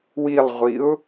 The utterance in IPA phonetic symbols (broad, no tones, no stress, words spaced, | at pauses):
wilˠʁʷiʊ̯